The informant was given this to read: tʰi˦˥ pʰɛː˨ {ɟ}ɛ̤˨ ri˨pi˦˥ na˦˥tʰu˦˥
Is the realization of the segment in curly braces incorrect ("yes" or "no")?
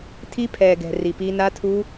yes